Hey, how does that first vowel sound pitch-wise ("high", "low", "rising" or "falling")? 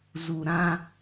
low